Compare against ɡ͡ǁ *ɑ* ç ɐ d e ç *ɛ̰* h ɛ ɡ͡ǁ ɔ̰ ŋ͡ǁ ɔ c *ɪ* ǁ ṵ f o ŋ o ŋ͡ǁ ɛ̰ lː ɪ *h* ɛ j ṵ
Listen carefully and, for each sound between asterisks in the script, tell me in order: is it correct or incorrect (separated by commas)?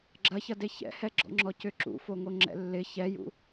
incorrect, correct, incorrect, incorrect